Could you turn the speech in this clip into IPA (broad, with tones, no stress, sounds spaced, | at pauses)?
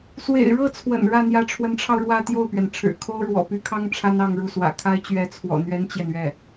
s w ḛ˨˩ ɪ̯ ɻ ɤ˥˩ t͡sʰ w ə̰˨˩ n ɻ ä˥˩ n̪ j ä˧˥ ʈ͡ʂʰ w ə˧˥ n ʈ͡ʂʰ ɑ˧ ʊ̯ ɻ w ä˥˧ t̪ j o˥˩ ʊ̯ p ɥ ɛ˩ n ʈ͡ʂʰ ɻ̩˨˩ kʰ o˥ ʊ̯ ɻ w ɔ̰˨˩ p y˥ kʰ ɑ˥ ŋ ʈ͡ʂʰ a˥ n ɑ˥˧ ŋ ɻ u˥˩ s w ä̰˨˩ kʰ a˥ ɪ̯ t͡ɕ ɥ ɛ˧˥ t͡sʰ w ɔ̰˨˩ n̪ ɥ ɛ˥ n t͡ɕ j ɛ˨ n ɥ ɛ˥˩